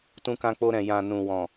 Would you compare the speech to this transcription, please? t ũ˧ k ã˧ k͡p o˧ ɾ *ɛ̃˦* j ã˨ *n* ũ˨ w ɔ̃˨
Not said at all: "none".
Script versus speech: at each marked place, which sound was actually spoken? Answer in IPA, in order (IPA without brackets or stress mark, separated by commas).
ɛ̃˨, n